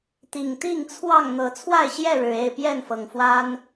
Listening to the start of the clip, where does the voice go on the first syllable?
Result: low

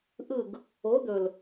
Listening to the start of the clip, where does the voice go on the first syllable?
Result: falling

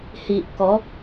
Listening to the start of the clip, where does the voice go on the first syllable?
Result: low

